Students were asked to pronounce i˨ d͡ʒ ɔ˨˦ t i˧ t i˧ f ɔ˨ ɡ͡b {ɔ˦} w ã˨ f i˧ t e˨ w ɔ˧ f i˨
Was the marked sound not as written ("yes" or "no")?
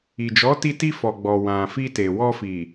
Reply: yes